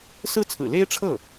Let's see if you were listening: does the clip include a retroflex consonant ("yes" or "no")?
yes